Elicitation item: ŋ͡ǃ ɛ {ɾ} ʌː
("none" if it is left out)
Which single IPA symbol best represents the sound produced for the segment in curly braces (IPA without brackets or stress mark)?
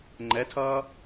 tʰ